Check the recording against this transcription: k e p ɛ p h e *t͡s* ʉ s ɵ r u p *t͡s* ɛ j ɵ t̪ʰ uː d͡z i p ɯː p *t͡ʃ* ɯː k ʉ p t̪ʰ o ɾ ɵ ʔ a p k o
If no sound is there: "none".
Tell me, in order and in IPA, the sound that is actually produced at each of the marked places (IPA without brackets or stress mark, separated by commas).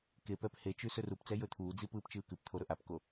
t͡ʃ, t͡s, t͡ʃ